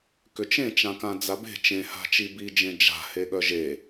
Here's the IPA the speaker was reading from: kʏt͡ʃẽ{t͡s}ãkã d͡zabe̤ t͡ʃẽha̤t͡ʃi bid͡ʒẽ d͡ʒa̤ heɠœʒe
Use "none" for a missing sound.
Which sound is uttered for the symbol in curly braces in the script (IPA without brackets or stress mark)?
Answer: t͡ʃ